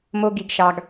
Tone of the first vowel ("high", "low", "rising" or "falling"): high